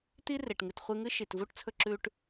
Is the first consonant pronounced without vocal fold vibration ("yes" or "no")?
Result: yes